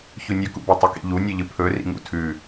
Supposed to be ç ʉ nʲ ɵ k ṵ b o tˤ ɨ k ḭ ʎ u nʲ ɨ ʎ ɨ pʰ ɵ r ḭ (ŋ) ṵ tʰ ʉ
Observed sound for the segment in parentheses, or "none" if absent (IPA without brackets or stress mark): ŋ